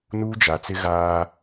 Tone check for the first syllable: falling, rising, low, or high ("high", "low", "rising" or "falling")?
high